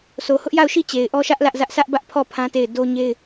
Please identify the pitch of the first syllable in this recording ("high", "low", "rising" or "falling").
low